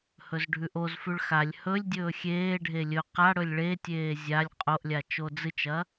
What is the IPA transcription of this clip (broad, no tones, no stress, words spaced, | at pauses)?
hɵzɖʱʉʔozfʉɭ xalʲ hɵlʲ dʲɵːxʲeːɖʱe lʲɵ qa ɽɵlʲɭetʲeː zʲalʲ qʼoʔlʲa t͡ʃod͡zɨt͡ʃɐ